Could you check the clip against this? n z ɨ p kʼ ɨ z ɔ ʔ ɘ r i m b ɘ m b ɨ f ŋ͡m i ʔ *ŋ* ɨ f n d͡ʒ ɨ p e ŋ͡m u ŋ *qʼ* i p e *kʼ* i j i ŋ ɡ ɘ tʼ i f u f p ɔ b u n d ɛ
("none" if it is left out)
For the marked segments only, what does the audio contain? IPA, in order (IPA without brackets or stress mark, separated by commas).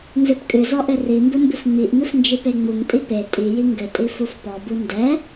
ŋ, tʼ, tʼ